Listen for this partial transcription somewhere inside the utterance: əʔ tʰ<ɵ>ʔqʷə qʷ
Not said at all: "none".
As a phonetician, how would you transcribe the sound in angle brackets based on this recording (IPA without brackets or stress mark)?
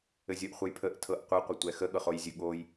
ɤ